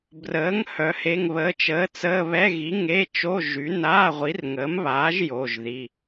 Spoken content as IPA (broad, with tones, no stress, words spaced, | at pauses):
brəː˨˥ŋ hœ˨˥he˧˥˧ŋβəː˧˥˧ t͡ʃəː˨˥t͡səː˧˥˧ βɛ˧˥˧ɣi˨˥ ŋe˧˥˧t͡ʃo˧˥˧ ʒy˨˥ naː˧˥˧ʁʷi˨˥rŋəː˨˥mβaː˨˥ʒ jo˧˥˧ʒði˧˥˧